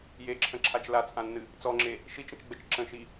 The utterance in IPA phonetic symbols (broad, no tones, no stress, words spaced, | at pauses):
jeǁʰə̃ǁʰat͡ʃ lat͡sʼãnːɨ | t͡sɔŋ͡ǁe | ʃit͡ʃə̃t͡ʃɡ͡bət͡ʃ ǁə̃ʃi